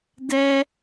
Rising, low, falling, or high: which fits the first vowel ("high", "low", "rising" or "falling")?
high